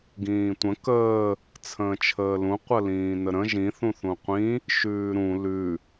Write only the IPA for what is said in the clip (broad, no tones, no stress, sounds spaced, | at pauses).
ɡ ĩː tʷ ə̃ k əː | t͡sʰ ə̃ː t͡ʃʰ əː l ũ qʷ ə l ĩː n ə ɾ ə̃ ʒ ĩ θ ũ θ ũ qʷ ĩ | ʃ ʉː ɾ ũ l ʉ